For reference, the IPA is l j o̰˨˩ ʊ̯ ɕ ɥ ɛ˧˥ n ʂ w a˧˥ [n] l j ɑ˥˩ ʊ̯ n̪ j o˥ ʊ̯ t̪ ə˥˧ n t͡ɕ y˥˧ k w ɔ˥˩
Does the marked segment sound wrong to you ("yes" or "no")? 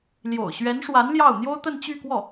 no